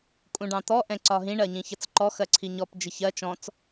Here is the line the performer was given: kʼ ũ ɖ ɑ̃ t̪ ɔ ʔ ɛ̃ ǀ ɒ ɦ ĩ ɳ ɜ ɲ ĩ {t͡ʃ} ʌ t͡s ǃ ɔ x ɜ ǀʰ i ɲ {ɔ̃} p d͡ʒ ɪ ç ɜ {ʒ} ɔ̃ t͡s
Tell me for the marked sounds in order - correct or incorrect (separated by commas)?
incorrect, incorrect, incorrect